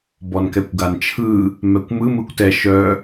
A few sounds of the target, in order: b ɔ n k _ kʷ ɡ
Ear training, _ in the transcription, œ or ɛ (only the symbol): ɛ